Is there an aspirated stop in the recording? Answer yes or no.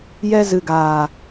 no